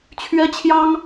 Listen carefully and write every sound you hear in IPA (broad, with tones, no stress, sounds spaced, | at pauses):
t͡ɕʰ ɥ ɛ˥ t͡ɕʰ j ɑ˥ ŋ